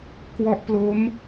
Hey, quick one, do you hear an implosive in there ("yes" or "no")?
no